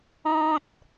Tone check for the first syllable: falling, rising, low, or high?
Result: high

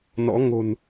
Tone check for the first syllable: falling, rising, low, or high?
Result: rising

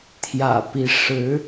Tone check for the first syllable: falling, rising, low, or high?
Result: low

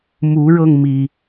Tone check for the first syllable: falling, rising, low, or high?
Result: rising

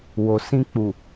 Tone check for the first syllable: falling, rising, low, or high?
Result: low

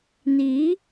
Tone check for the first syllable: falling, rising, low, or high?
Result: rising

